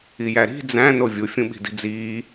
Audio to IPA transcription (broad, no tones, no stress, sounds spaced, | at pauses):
i j æ ɾ i̤ d͡z æ̃ n o vʲ u fʲ ũ ɓ i̤ d i̤ d͡z iː